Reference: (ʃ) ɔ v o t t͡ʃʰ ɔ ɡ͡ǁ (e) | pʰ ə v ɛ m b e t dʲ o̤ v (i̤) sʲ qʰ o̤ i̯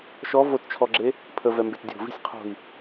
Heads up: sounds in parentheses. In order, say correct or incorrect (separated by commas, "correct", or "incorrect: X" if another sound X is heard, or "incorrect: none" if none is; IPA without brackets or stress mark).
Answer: correct, correct, correct